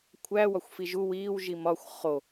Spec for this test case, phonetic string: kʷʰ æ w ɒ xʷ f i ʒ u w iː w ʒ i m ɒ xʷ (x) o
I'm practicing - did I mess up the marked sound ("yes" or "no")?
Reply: yes